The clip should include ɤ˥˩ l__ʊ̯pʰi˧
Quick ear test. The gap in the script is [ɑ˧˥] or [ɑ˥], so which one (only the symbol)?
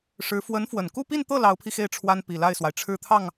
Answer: ɑ˧˥